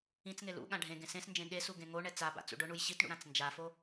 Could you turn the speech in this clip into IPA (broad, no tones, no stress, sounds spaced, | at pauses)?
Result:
ĩ t͡s ŋ e l ṵ ɠ ã ɖʱ ẽ ɡ ẽ s ẽ s n d͡ʒ ẽ ɠ e s u ɡ ẽ ŋ o ɳ ɛ t͡s a b a̰ t͡s ṵ ɖ ʊ ɳ u j ɕ i t ɳ ṵ ɾ ã t͡s n d͡ʒ a f o